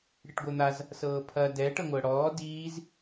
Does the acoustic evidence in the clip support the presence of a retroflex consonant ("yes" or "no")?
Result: yes